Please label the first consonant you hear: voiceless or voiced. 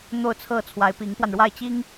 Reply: voiced